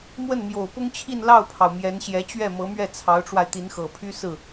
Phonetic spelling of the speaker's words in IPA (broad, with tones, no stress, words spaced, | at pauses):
mwə˥˩nmjo˨˩ʊ̯pʊ˥ŋt͡ɕʰi˥˧n lɑ˥˩ʊ̯pʰɑ˩ʊ̯ mjɛ˧˥nɕjɛ˧˥ t͡ɕɥɛ˥˩mɤ˧˥mɥɛ˥˩ t͡sʰɑ˧˥ʊ̯ʈ͡ʂwa˧ɪ̯ t̪i˧˥nxɤ˨˩pʰy˥ sɹ̩˥˩